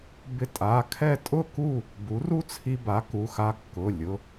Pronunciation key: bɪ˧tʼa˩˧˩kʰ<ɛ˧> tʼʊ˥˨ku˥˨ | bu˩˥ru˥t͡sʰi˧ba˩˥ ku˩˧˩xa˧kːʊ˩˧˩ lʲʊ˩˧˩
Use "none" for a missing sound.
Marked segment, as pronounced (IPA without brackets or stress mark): ɛ˥˨